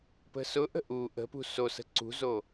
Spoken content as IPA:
p ə̤ s ʊ ʔ ə̤ ʔ u ʔ ə̤ p ṳ s o s ə̤ ǀ ṳ z o

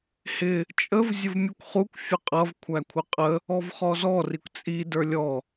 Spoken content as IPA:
h ɪ | t͡ʃʼ ə v zʲ ə v mʲ u kʷ χ u kʷ fʲ ə qʼ ʌ v kʷʰ æ kʷʰ ɪ qʼ ə | ɔ v χ ɔ z ɔ r i kʷ t͡sʼ i d ə˞ lʲ ɔ

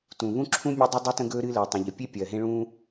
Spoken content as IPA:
t ũ˩ β ũ˥ ǁʰ ũ˥ mʲ e˥ dˤ u˥ dˤ ɜ˥ t ə̃˥ ɡ ɵː˥ ɾ ɨː˥ l ɜ˩ tˤ ũ˩ ʎ ə˩ pʲ e˥ pʲ ɜ˩ ɦ ẽ˥ ɭ ũː˥

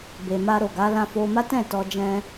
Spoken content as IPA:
b e˨ m a˧ ɾ o˨ ɡ a˨˦ l ã˧ f o˧ m a˦ t ɛ̃˦˨ t ɔ˧ d͡ʒ ɛ̃˧

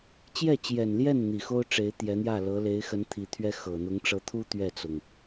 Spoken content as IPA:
t͡ɕ j ɛ˥˩ t͡ɕ j ɛ˨˩ n l j ɛ˥˩ n n̪ i˨˩ x o˥ ʊ̯ ʈ͡ʂ e˧˥ ɪ̯ t̪ j ɛ˧˥ n̪ j ä˥˩ l ɤ˧˥ l e˧˥ ɪ̯ x ə˧˥ n t̪ʰ i˨˩ t̪ʰ ɥ ɛ˥ x ɤ˨˩ n̪ ʊ˧˥ ŋ ʈ͡ʂ ɤ˧˥ t̪ʰ u˥ t̪ ɥ ɛ˥˩ t͡s ʊ˩ ŋ

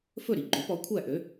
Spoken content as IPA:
f ɵ˥˩ ɾ i˩ ɡ͡ǃ ø˩˥ p ɔ˩˥ kʷʰ æ˥˩ ʔ ø˩˥

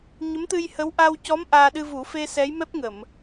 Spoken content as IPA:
ɲ ə˧˥ m t̪ ɨ˧ j h ə˧˥ w ʔ a˧ w c ɔ˧˥ m ʔ aː˧ ɗ ɨ˧ v u˨˩˦ f e˧ s ɛ˧˥ j m ɛ˦˥ p̚ ŋ ə˨˩˨ m

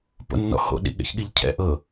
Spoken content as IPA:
p o̰ nː ɔ̰ h o̰ ɗ ḭ ɠ ɛ̰ ç ɠ i ʎ cʰ ɛ̰ ʔ ɤ

